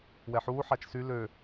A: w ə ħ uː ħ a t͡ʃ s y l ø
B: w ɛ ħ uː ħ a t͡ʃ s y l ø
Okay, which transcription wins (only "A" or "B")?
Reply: B